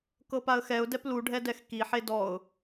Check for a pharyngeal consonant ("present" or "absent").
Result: present